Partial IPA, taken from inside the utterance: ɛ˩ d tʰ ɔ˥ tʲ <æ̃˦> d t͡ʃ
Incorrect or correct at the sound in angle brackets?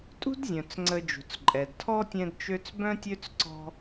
incorrect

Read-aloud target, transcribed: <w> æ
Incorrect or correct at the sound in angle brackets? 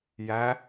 incorrect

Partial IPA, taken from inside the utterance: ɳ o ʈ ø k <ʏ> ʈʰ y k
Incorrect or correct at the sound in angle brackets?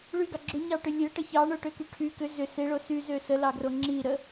incorrect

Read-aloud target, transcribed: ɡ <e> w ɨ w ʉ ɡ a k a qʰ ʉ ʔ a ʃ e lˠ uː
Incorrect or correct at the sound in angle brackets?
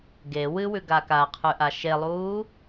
correct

